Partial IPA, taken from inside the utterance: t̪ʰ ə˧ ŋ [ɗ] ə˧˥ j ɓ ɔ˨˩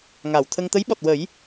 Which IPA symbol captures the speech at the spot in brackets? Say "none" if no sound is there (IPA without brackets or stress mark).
t̪